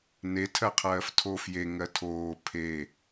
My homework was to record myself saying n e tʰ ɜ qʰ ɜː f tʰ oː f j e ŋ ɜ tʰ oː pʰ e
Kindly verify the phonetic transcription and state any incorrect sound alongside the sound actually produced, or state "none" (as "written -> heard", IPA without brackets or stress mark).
none